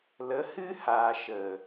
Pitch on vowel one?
rising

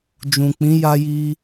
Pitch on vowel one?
low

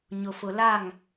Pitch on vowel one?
low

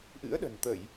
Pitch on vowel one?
rising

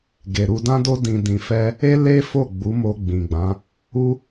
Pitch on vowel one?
low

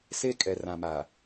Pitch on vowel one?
high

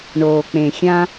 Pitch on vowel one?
low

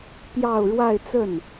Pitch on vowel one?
falling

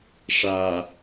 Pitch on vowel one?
low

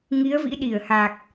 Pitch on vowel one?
rising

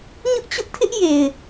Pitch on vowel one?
high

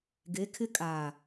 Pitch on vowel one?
rising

